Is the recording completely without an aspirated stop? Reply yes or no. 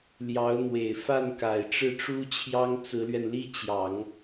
no